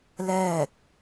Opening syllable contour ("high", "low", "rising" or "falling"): falling